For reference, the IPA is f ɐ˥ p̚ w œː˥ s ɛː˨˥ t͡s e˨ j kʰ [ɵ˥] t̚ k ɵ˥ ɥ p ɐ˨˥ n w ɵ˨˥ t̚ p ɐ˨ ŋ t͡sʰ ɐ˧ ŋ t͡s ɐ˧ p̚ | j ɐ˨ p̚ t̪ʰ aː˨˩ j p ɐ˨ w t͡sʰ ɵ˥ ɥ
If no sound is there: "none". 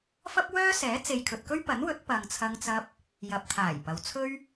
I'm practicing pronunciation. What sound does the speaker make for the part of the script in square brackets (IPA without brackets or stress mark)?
ɵ˨